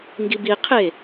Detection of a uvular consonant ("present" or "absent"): present